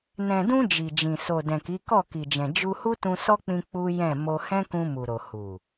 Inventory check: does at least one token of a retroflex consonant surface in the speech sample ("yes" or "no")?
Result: no